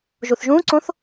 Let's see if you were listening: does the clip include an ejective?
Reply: no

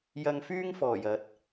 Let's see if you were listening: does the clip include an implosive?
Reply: no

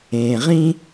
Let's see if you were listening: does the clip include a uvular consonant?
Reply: yes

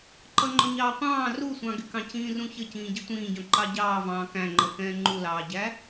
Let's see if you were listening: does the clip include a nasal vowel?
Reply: yes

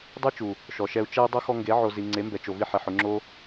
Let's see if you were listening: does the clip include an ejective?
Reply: no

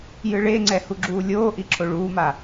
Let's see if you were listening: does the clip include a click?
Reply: yes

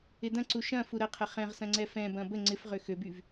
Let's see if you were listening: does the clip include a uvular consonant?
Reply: yes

